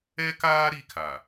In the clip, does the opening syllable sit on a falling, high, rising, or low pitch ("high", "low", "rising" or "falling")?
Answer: high